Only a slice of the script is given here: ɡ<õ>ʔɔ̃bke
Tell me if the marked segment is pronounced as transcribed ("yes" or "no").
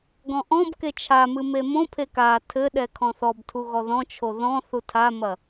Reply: no